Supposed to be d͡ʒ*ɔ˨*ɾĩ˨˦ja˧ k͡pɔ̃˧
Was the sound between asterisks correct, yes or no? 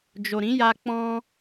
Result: no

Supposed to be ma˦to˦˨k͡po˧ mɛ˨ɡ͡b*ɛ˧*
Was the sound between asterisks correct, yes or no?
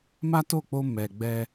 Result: yes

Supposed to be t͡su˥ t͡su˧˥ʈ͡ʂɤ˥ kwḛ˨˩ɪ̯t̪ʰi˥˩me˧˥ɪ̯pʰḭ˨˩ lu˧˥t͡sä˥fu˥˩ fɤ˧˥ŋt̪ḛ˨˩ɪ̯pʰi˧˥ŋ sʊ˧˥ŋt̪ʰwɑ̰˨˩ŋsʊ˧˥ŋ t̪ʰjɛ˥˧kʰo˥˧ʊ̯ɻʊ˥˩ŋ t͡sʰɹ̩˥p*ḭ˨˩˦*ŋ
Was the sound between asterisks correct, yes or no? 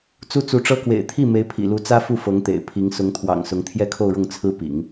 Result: yes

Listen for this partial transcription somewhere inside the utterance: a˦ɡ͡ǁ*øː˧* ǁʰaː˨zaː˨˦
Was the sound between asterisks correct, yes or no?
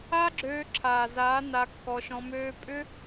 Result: yes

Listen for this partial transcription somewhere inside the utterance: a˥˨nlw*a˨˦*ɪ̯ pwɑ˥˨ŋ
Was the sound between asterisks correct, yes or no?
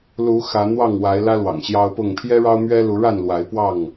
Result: yes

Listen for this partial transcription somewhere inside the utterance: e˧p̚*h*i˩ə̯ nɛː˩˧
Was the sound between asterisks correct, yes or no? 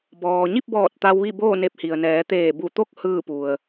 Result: yes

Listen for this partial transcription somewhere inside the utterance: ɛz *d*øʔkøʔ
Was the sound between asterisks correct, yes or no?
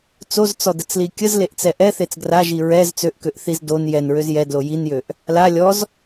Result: no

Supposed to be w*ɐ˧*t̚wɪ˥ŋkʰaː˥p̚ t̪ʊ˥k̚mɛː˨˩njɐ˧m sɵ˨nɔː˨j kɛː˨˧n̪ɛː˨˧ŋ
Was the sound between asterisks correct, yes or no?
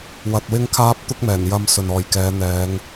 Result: yes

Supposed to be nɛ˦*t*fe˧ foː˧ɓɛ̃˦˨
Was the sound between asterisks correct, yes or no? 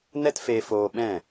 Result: yes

